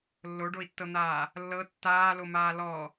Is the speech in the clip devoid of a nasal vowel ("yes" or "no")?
yes